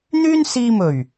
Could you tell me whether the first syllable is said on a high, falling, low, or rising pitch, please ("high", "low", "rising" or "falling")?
high